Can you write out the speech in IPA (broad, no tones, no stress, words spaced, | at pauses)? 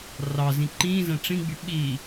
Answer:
rɑ zĩǃĩːzæ̃ ʈ͡ʂĩɡ͡by ɓi